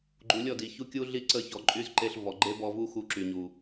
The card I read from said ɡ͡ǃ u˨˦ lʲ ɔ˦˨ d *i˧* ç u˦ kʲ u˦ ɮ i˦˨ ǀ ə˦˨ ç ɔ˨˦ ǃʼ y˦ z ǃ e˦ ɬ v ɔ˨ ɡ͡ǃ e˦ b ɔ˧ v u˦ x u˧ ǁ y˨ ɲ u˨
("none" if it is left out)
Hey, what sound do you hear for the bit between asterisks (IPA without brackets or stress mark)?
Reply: i˨